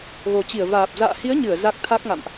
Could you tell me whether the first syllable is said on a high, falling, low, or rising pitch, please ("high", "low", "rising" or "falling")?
low